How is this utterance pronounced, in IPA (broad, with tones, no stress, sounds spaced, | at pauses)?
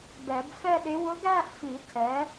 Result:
b ɛ˨˩˦ b f ɛ˥˧ ɗ ɪ˧˥ w ʊ˧˥ ɡ æ˥˧ ʔ f i˨˩˦ tʰ ɛ˩˥